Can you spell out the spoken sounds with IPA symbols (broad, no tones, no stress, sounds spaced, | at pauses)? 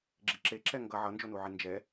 ɡ͡ǁ i ǁ e ǁ ɛ ŋ ɡ ʌ ʕ ʌ n d͡ʒ o n u ʕ i n d͡ʒ ɛ